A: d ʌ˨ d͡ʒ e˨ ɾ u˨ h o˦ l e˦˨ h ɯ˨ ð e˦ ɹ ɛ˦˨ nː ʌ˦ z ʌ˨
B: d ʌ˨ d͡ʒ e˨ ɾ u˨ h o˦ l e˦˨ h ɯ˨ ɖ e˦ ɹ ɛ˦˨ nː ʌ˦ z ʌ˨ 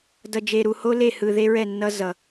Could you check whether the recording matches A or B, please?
A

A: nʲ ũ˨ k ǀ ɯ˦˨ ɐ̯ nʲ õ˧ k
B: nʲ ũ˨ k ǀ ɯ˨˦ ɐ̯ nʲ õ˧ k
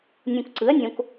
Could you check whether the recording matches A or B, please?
B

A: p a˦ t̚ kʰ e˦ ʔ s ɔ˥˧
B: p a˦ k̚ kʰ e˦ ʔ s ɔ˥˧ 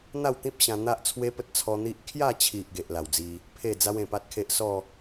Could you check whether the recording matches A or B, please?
A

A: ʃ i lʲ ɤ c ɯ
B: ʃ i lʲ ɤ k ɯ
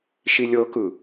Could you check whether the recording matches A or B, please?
B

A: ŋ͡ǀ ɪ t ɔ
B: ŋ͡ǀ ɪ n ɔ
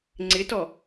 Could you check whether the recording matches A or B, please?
A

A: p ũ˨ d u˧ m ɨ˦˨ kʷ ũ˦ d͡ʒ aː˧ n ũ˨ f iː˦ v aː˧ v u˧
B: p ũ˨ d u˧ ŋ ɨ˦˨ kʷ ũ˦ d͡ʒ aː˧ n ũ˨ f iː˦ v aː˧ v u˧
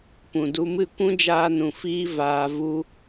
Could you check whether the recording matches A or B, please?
A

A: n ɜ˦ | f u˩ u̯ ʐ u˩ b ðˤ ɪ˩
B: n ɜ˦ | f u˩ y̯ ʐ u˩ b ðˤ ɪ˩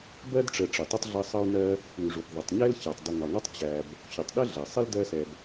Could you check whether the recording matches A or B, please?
B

